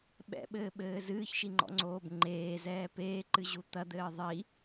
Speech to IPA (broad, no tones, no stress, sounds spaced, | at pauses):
ɓ ɛ̰ ɓ ɘː ɓ ɘː z ɨː ç ʃ i ŋ͡ǃ ɔ̰ ŋ͡ǀ oː b ŋ͡ǃ eː z ɛː p eː ǃ ɨ ʑ u t̪ ɐ d̪ ɘː ðˤ i